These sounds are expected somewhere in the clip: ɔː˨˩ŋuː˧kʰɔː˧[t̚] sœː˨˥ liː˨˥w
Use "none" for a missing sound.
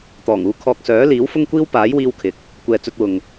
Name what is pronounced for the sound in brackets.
k̚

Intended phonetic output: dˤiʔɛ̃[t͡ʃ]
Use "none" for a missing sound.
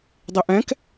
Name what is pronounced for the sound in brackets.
k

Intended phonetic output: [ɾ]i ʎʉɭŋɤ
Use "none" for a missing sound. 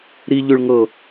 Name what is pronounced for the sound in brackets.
ɾ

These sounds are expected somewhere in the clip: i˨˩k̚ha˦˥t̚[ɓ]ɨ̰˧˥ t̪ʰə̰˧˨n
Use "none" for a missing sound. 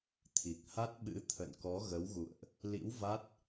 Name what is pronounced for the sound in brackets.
ɓ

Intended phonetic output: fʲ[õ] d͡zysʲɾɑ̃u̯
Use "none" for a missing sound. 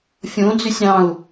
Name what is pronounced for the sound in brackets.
õ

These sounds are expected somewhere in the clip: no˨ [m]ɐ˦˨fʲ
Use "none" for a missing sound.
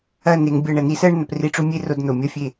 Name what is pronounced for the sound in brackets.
mʲ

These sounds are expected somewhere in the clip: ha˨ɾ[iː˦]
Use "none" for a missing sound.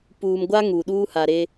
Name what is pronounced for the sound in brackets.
eː˦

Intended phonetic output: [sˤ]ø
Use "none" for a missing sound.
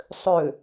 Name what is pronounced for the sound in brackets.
sˤ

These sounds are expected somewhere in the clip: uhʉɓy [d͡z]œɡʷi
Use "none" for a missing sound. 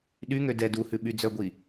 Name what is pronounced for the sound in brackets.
d͡z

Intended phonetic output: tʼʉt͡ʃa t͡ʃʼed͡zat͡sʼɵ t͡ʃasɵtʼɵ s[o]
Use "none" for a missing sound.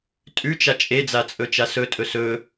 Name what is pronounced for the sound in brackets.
ɵ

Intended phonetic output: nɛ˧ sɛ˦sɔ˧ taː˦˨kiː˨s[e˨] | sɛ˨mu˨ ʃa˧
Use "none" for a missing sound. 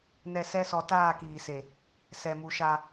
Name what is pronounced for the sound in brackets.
e˨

